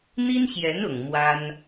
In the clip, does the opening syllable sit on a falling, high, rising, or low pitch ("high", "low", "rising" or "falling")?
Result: high